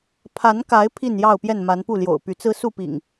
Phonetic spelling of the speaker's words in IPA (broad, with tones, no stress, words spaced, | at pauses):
pʰa˨˦nka˨˦ɪ̯ pʰi˥˨njɑ˥˨ʊ̯pjɛ˥˨n ma˨˦npu˥˨ljo̰˨˩ʊ̯ py˨˦t͡sɹ̩˦su˥˨pḭ˨˩ŋ